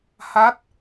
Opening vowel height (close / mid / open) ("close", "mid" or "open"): open